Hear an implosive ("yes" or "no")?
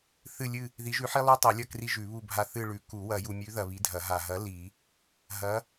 no